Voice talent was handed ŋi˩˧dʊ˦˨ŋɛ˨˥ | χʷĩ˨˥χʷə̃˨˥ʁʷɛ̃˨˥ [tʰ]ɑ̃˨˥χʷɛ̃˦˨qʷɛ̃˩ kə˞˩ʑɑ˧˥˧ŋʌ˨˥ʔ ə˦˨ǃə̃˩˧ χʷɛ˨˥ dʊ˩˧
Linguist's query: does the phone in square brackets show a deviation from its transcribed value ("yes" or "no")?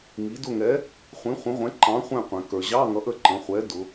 yes